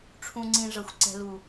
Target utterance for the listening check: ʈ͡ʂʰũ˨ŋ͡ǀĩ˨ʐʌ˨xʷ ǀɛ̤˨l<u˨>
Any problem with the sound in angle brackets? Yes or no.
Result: no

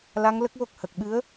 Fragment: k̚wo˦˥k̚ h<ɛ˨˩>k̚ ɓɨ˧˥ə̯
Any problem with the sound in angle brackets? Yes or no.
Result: yes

